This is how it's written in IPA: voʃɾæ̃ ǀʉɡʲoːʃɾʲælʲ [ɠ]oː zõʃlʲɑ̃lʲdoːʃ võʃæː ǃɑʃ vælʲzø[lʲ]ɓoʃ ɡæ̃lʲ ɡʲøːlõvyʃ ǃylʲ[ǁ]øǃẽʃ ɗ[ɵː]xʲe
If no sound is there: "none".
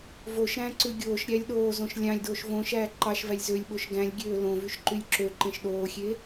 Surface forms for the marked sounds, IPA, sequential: ɗ, lʲ, ǁ, oː

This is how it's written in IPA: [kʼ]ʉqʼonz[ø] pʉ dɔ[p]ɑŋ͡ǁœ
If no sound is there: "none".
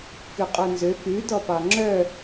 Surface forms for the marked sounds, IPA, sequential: k, ø, p

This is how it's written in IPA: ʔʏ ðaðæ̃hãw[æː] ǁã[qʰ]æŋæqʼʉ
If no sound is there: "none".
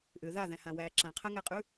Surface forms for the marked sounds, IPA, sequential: æː, qʰ

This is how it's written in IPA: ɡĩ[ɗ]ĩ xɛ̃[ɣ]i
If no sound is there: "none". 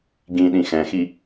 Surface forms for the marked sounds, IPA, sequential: ɗ, x

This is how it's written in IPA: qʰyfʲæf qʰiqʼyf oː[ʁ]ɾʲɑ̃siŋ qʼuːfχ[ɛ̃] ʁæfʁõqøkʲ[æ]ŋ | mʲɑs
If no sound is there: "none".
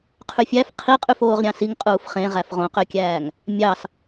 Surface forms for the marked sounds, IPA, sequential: ʁ, ẽ, æː

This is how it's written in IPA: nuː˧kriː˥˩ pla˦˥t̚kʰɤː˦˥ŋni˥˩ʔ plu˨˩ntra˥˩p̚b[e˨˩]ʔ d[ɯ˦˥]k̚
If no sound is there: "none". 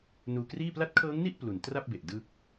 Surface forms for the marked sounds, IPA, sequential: e˨˩, ɯ˥˩

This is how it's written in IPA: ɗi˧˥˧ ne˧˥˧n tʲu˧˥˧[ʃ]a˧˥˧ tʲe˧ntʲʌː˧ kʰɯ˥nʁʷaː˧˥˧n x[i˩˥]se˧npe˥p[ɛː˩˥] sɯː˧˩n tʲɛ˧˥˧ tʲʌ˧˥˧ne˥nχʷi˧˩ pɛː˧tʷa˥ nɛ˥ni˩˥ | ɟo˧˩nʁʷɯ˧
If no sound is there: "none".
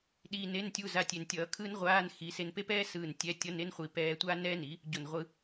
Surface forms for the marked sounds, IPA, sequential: z, i˩˥, ɛː˥

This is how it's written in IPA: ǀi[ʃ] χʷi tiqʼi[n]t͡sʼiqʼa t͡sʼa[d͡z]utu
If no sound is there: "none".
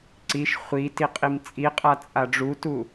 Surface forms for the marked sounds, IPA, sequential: ʃ, m, ɖ͡ʐ

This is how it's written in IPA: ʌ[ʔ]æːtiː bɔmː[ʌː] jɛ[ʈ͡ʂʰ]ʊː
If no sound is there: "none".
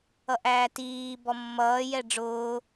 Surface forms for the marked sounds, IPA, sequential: ʔ, ʌː, ɖ͡ʐ

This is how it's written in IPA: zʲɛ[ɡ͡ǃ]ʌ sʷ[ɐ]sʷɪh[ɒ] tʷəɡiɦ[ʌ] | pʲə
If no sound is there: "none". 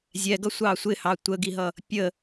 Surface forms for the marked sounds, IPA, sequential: ɡ, ɑ, ɑ, ʌ

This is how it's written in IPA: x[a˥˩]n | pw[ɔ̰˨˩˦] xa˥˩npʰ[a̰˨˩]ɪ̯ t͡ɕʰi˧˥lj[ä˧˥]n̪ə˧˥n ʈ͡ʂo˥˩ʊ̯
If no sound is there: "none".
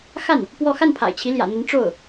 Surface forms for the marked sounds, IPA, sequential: a˥˩, ɔ˥˧, a̰˨˩, ä̰˨˩

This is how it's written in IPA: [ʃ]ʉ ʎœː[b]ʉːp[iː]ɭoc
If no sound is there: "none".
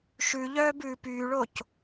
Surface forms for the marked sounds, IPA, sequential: ʃ, b, yː

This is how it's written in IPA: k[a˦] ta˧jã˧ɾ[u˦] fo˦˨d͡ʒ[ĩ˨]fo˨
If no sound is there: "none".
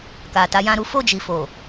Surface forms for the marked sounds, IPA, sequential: a˨, u˦, i˨

